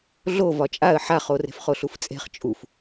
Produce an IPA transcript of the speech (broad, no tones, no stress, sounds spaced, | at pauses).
ɮ o v ɒ t͡ʃʼ a ə̯ ħ a χ o r e̤ f χ o ɬ u f t͡sʼ e̤ χ t͡ʃʼ u f